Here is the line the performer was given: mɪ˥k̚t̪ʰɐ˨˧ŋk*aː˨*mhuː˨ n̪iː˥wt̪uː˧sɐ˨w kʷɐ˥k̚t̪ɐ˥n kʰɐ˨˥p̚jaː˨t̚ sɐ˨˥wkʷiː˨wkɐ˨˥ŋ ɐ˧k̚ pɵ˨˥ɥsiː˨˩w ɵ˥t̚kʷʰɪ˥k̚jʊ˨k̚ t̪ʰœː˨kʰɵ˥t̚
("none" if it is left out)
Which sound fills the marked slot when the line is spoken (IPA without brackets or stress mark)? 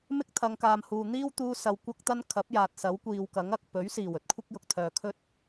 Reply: aː˨